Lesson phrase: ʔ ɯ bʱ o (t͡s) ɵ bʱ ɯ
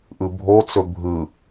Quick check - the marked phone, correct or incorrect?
correct